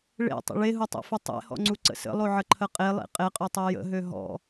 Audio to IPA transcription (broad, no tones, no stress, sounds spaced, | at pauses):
ɭ ḛ tˤ ə̰ ɭ e ɦ u tˤ ḛ f ʏ tˤ ḛ h ɔ̰ ŋ͡ǀ u ǀ ə̰ s ə̰ lˠ o ʕ ə ǃʰ ə qʼ e lˠ ḛ qʼ e qʼ ø tˤ e j ə̰ ɦ ø ɦ ɔ̰